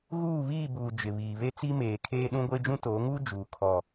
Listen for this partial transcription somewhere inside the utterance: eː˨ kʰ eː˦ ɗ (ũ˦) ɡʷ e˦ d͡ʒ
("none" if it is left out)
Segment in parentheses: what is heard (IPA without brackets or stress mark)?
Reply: ũ˦